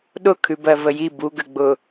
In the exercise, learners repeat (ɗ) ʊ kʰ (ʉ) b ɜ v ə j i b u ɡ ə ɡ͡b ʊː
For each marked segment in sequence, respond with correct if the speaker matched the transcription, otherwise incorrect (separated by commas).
correct, correct